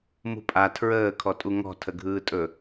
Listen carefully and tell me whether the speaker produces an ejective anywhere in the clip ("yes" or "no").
yes